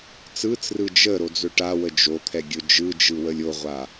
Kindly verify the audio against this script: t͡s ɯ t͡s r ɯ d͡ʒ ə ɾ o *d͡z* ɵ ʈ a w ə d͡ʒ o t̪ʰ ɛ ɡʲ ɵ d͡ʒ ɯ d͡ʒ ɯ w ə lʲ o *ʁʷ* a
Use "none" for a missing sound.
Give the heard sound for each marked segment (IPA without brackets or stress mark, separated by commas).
d͡z, ʁʷ